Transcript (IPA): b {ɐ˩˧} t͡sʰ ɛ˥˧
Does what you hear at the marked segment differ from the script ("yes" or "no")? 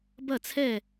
yes